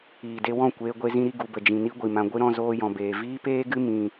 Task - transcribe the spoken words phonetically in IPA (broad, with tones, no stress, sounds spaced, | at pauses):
iː˨ d e˧ w ɔ̃˦˨ kʷ eː˧ ɡʷ e˧ z ĩ˧ ɾ i˧ ɡ u˨ b ə˨ d͡ʒ ĩ˨ n i˦ ɡʷ i˨ m ã˧ ɡʷ ɨ˦ ɾ ɔ̃˧ z oː˧ j ɔ̃˨ b eː˨ v iː˦ p eː˦ ɡ ɨ˦ m ĩ˧